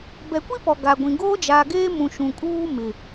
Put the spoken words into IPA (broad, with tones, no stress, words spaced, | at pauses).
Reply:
bɛ˨kʷi˦ pɔ˨ɡa˨ɡʷĩ˨ ɡoː˦d͡ʒaː˨ɡeː˦mũ˨ ʃũ˨kʼuː˦ mɪ˨